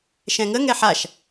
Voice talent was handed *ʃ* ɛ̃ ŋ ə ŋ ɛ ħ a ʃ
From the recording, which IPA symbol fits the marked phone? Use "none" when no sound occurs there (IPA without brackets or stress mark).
ʃ